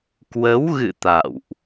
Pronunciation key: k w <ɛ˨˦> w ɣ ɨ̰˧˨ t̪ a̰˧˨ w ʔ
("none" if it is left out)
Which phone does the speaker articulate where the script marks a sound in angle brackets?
ə˨˦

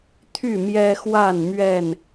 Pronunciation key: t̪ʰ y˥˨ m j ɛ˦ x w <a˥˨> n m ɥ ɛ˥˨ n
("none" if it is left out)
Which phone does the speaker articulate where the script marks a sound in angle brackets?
a˥˨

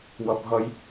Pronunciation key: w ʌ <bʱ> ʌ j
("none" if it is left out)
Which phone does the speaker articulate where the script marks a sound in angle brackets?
bʱ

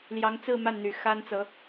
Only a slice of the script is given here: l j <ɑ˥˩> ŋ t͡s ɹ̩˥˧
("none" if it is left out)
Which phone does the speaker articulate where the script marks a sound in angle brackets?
ɑ˧˥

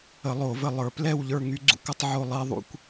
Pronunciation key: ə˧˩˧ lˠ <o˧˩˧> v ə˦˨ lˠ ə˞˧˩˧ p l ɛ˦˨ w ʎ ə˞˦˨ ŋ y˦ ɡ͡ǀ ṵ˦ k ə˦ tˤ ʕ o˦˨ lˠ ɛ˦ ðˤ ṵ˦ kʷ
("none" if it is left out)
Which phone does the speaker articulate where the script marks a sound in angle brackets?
o˧˩˧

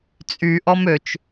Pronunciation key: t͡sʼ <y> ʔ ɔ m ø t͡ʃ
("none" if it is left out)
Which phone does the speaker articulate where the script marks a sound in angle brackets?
y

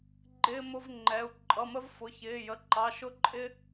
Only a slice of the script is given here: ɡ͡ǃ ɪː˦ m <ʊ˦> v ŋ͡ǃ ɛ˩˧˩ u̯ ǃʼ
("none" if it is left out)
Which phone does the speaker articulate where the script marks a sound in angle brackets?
ʊ˦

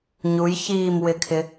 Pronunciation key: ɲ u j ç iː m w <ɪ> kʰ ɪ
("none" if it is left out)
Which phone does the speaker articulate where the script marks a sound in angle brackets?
ɪ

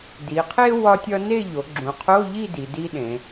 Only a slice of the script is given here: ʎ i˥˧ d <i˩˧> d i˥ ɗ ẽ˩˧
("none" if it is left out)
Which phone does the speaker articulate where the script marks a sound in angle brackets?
i˩˧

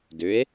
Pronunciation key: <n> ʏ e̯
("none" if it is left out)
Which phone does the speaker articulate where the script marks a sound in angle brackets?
d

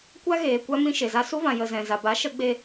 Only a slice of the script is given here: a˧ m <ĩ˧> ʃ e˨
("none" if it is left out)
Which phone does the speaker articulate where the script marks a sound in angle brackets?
ĩ˧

